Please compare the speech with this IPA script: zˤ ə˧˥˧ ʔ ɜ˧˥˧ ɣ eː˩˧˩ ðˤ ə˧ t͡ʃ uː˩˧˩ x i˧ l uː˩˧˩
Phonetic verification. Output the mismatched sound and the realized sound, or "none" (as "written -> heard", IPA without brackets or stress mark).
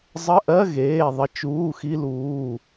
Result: none